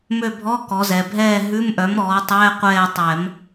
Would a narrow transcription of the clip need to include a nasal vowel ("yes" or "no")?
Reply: no